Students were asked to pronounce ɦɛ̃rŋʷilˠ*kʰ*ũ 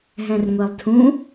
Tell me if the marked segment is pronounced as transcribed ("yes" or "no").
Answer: no